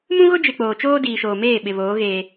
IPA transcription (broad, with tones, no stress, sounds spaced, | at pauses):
m ũ˦ ɣ ʊ˦ d͡ʒ ɪ˨ k͡p oː˨ t͡ʃ oː˦ d iː˨ ʃ oː˨ m eː˦˨ ɓ ɪ˨ β oː˨˦ ɣ eː˦